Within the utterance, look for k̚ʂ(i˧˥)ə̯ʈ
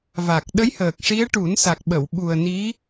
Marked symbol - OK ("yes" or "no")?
yes